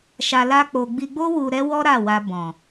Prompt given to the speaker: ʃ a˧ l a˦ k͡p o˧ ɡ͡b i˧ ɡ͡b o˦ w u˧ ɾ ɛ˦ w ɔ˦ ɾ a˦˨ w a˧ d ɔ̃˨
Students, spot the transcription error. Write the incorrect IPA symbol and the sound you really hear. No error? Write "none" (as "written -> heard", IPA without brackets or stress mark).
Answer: d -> b